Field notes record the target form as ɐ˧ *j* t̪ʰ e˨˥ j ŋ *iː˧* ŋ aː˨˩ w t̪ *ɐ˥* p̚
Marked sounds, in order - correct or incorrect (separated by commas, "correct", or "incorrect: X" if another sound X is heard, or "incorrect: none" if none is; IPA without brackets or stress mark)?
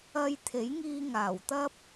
correct, correct, correct